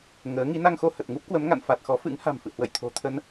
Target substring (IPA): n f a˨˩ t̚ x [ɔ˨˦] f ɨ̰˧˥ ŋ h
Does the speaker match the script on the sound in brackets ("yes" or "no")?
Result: yes